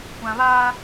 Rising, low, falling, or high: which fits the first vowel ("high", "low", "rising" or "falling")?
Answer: low